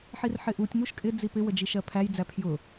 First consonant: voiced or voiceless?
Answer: voiceless